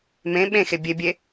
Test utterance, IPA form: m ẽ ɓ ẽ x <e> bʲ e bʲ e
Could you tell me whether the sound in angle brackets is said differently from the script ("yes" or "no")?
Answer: no